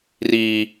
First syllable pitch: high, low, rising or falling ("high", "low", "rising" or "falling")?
low